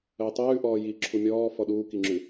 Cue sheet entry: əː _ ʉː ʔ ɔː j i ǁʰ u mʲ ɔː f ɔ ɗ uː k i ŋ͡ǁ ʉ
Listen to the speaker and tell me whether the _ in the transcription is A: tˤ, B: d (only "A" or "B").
A